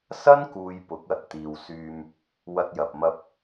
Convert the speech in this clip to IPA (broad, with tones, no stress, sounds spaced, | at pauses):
s ɐ˥ n k uː˨ j p ʊ˨˥ k̚ ɐ˨ t̚ t̪ iː˨ w s yː˧ m | w ɐ˧ t̚ j ɐ˨ p̚ m ɐ˧ p̚